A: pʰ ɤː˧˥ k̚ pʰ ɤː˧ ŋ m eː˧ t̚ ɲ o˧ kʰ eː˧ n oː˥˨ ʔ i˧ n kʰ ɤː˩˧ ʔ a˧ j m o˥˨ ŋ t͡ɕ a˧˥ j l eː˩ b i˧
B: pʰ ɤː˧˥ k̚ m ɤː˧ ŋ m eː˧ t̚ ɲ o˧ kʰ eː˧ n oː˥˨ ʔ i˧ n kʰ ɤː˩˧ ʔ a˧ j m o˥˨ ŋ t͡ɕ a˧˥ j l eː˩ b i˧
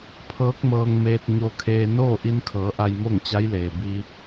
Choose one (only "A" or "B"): B